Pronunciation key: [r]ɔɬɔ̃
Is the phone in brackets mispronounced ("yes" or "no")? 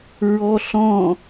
yes